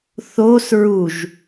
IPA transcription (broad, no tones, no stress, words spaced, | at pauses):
θos ɹuʒ